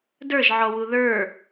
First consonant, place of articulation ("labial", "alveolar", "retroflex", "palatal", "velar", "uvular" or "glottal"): alveolar